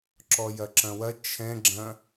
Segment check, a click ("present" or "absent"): present